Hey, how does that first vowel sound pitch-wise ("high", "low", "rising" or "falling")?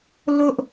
high